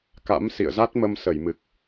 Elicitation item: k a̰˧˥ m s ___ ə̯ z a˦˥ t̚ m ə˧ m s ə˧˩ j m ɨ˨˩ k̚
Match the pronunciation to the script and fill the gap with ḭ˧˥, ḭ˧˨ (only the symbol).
ḭ˧˨